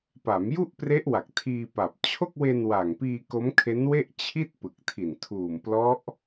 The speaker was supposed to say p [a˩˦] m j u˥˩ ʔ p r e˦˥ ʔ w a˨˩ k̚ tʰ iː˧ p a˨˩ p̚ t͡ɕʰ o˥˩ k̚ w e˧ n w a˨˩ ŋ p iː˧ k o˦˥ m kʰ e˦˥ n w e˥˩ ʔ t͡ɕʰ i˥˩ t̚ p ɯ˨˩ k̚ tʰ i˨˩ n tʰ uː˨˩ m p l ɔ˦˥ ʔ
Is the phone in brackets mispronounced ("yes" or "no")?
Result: no